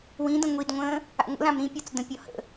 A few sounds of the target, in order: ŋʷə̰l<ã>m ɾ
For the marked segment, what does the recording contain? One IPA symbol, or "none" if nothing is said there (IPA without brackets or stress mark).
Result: ã